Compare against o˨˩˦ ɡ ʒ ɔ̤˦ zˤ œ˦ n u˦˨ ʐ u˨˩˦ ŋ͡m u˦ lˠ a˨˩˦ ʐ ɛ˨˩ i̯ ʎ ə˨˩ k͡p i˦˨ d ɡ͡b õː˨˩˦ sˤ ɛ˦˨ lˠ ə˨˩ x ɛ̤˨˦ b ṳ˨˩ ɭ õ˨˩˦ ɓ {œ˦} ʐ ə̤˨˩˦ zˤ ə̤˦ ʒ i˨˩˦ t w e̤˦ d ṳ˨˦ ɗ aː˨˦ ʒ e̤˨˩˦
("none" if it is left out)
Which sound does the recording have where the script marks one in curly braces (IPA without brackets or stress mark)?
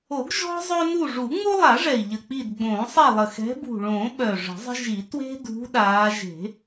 œ˨˩